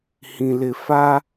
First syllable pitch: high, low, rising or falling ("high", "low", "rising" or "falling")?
low